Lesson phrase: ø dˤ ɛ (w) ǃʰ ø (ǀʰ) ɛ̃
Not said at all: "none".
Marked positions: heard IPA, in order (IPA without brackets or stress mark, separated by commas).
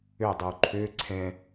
w, ǀʰ